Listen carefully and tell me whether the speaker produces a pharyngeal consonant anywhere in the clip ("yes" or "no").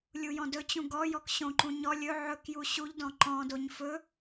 yes